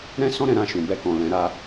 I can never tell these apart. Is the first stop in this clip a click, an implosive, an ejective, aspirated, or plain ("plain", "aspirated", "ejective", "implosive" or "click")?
plain